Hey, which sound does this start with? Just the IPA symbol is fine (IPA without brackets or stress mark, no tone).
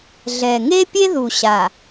ɮ